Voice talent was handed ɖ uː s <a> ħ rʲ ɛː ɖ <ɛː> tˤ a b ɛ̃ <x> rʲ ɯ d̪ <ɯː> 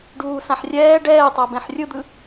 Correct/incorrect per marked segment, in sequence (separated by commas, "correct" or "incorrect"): incorrect, correct, incorrect, incorrect